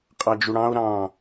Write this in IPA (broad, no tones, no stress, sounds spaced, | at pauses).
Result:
qʼ ɑ d͡ʒ u ɽ ɑ̃ o̯ ɾ ɑ̃